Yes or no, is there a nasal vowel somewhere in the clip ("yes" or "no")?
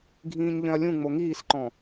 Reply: yes